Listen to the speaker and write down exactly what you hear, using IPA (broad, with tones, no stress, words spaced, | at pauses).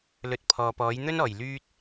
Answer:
lɵ˨t̚ pʰɔː˨pɔː˨˥j n̪ɵ˥nɔː˨˩j lyː˧t̚